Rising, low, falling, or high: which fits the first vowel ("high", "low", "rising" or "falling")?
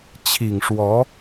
low